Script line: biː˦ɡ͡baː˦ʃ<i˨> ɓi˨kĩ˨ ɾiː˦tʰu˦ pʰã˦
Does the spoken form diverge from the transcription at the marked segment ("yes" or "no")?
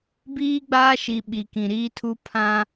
no